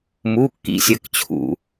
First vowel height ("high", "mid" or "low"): high